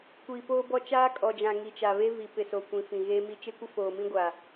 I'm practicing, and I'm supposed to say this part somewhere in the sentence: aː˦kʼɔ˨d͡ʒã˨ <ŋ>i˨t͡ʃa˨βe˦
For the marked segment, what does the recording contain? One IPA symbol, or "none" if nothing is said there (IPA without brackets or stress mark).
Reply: ŋ